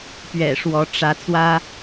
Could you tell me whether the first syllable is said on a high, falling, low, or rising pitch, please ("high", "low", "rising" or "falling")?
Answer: low